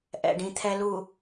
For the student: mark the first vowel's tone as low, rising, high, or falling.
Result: low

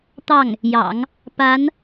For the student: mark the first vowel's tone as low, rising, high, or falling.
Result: falling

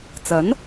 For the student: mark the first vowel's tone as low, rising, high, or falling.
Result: rising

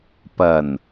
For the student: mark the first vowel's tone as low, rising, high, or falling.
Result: low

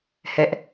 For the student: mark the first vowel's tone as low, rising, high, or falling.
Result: high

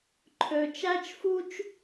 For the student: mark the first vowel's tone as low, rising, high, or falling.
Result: low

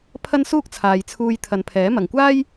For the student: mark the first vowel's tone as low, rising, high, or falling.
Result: high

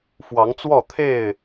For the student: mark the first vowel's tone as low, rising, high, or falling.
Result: rising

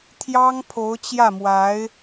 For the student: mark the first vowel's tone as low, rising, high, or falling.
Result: high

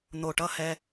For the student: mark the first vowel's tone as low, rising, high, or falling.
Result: low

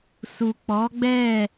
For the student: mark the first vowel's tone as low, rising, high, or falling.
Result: low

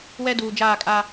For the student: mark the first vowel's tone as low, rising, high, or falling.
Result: high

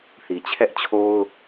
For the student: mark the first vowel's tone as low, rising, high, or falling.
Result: low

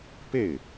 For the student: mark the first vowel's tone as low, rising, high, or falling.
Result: falling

